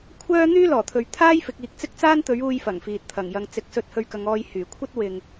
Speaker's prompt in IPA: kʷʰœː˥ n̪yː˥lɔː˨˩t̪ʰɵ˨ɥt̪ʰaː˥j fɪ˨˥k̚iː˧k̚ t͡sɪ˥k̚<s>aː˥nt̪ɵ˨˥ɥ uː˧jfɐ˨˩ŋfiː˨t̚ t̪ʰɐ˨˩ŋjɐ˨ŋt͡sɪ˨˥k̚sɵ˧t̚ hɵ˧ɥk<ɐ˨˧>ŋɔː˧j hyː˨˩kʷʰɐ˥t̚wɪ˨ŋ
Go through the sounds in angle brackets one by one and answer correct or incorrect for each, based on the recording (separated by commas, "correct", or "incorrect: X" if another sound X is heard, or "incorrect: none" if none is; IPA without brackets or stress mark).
incorrect: t͡s, correct